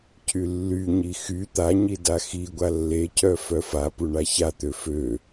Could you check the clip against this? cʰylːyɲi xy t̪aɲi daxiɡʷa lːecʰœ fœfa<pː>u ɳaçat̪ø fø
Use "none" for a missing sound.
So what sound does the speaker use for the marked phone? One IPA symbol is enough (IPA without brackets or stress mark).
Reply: p